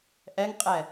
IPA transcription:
ʔ ɛ ŋ qʼ ɛ

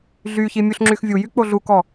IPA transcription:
ɮ y ç i mʲ u ɬ ŋ͡ǁ y x vʲ u j y k͡p o ɮ u k ɔ

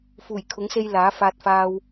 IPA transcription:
f uː˨˩ j kʰ ʊ˨˥ ŋ s e˧ j l aː˨˥ f aː˧ t̚ f aː˧ w

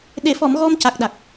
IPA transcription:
ɗ e˨˩˨ f ɔ˨˩˨ m ɣ ɔ˧ m c a˨˩ k̚ ɗ a˨˩ k̚

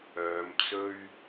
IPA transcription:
œː˨˧ m t͡s ɵ˥ ɥ

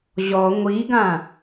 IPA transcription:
ʑ ɔ ŋʷ i ɡ ã

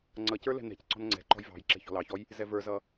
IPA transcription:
ŋ͡ǀ ʌ c ə˞ l ɛ̤ n ɛ̤ c ǀ ɔ̤ n ŋ͡ǀ ɛ̤ ǃ ɔ̤ j v ɑ̤ j ǁ ɛ̤ ç ɔ̤ l ɑ ç ɔ j | z ɛ v ə˞ z ʌ

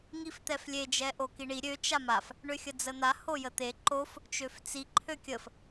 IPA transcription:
ŋ i f t̪ ɛ f lʲ e d͡ʒ ɛ ʔ o k i ɳ i ɾʲ ø t͡ʃ a m a f | ɳ ø xʲ ə d͡z ə n̪ a h o j ə t̪ e ǃ o f | t͡ʃ ø f t͡s i ǃʰ ø kʲ ə f

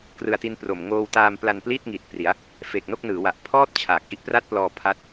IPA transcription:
k r ɯ˧ a̯ t i˦˥ n p r o˨˩ m ŋ oː˧ w t aː˧ m p l a˧ n p l i˥˩ t̚ ŋ i˨˩ t̚ p r i˩˦ a̯ | f e˨˩ k̚ n o˥˩ k̚ n ɯː˩˦ w a˨˩ ʔ pʰ ɔː˥˩ t̚ t͡ɕʰ aː˨˩ k̚ ʔ i˦˥ ʔ p r a˥˩ t̚ p l ɔː˧ pʰ a˦˥ t̚

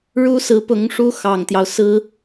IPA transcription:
ɻ u˥ s ɹ̩˧˥ p ʊ˧˥ ŋ ʂ u˥ x ɑ˨˩ ŋ t̪ j ɑ˦ ʊ̯ s ɹ̩˥

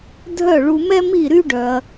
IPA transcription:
dʱ œ˥˩ ɭ u˧ m ɛ˥ m i˥˩ ɾ y˥ ɖ œ˧ ɐ̯

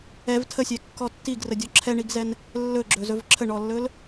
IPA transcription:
ɛ v tʰ ə sʲ ɛ kː ɔ tː i ɡ r ə dʲ ɔ ǁʰ ɛ ɳ i ɡ z ɛ n | lː ɵ ɡ͡ǁ ɵ z ɵ v ǁʰ ə ɳ ɔ lː ɵ l

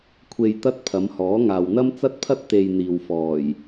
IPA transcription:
kʷʰ e˧ j t̪ ɐ˥ t̚ pʰ ɐ˨˧ m h ɔː˨˥ ŋ aː˨ w n̪ ɐ˥ m t͡s ɐ˥ t̚ pʰ ɐ˥ t̚ t̪ e˧ j n̪ iː˨ w f ɔː˨˩ j

